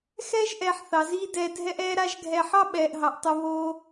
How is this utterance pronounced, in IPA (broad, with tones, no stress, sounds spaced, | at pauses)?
x ɛː˦ ʒ ʔ ɛː˨ ħ θ ɑ˨ z iː˦ d ɛː˧ dʱ ɛ˦ ʔ ɛː˦ ɾ a˦ ʒ ɡʱ ɛ˨ ħ ɑ˦ ɓ ɛː˨ ʔ ɦ ɑ˨ ʔ tˤ o˧ β oː˧